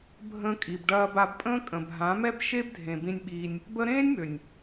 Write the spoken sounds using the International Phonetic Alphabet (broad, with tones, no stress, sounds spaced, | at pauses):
bʱ ə̃ː˧ kʼ i˨ b ɖ ɐː˧ b a˧ b pʼ ə̃ː˦ kʼ ə̃˨ bʱ ã˨˦ m ɛ˦ b ʃ e˦ b dʱ ẽ˨ b ĩ˧ nʲ ɓ iː˧ nʲ | b ə˦ ɾ ẽː˦ nʲ m ø˨ nʲ